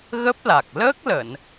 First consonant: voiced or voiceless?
voiced